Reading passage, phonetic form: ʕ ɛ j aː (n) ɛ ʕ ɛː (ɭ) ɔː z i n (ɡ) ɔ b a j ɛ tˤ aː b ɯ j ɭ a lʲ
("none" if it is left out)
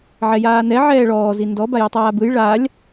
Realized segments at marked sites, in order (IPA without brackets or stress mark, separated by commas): n, ɭ, d